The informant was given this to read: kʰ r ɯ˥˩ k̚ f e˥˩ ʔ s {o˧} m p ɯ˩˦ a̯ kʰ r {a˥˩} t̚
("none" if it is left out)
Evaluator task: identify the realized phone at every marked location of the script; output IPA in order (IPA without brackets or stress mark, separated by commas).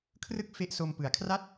o˧, a˥˩